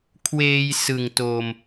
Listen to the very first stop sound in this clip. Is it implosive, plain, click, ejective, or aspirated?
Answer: aspirated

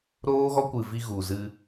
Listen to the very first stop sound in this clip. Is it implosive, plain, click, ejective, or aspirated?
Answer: plain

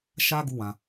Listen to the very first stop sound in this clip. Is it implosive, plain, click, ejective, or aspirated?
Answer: plain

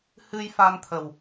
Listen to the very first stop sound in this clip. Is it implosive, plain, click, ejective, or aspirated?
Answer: aspirated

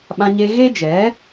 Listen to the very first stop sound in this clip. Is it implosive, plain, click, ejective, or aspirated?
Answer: implosive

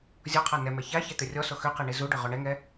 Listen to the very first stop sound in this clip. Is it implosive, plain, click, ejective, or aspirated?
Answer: aspirated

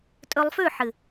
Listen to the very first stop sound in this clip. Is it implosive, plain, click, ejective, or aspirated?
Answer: ejective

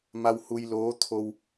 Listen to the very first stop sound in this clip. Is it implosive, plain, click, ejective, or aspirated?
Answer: aspirated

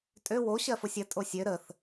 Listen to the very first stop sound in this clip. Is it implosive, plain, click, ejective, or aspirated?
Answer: ejective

